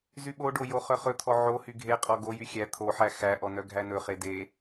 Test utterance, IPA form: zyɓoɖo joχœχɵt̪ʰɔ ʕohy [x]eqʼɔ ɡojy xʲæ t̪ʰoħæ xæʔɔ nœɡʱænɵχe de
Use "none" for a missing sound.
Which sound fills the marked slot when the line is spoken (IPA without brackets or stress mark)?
ɡʱ